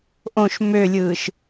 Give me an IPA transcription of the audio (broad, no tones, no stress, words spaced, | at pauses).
ʔõʃ mølʲɯːʃ